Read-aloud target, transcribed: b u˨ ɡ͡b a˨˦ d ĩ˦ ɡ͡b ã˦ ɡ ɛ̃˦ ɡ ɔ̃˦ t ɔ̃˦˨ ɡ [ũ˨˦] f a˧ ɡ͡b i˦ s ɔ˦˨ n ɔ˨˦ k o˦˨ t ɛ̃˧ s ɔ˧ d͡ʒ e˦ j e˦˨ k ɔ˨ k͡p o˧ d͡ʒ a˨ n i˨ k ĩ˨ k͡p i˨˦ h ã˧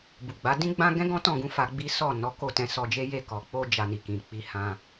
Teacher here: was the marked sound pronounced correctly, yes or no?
yes